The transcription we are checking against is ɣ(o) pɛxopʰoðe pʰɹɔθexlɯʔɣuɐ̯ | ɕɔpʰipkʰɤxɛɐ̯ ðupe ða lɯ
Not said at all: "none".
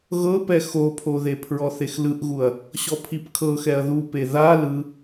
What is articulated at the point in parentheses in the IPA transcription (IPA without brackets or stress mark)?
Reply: ɤ